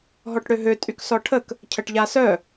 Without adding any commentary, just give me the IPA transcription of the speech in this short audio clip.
ɦɔʈɽøɦø tʼyksɔʈʰək | cʰəʈʎasœ

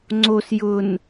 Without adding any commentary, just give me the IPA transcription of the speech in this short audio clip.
ŋ͡ǀos jʊn

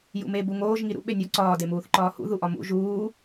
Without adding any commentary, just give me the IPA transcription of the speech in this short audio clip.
jṵme buŋoːʒ ŋiɾṵ ɓenʲɒ ǀɒː demuːθǃɒːhṵ ðuʔɒmṵ ʒuː

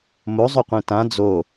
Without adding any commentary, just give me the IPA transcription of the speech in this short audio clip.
mozˤɵqʷẽ tã d͡zo

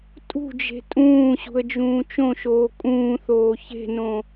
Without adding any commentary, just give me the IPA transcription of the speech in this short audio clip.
tʼṳd͡ʒe̤ tʼũːɕṳə̯d͡ʒũː t͡ʃõʃoː kʼũːθoː çe̤nõ

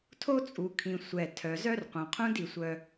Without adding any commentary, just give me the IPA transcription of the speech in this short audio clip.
tʰo˦t͡sʼu˨kʰĩ˨ sʷɛ˨ tʰœ˨zœ˦rqʷœ̃˨qʰũ˦d i˨sʷœ˨

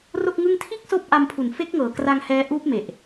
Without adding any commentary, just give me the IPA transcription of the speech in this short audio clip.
ro˥˩k̚ŋɯ˥˩ŋ tʰiː˥˩k̚soː˦˥p̚ʔa˧mpʰu˨˩n fe˦˥k̚ŋɤː˨˩kra˧ŋ hɛː˦˥ ʔuː˦˥p̚me˨˩ʔ

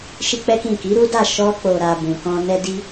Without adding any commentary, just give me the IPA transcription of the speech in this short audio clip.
ʃi˦k͡pɛ˦kĩ˦˨ ki˨˦ɾu˦da˦˨ ʃɔ˧k͡po˨ ɾa˨ bũ˨kɔ̃˧ nɛ˧ di˧

